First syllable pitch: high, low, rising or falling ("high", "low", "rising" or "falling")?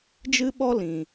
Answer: high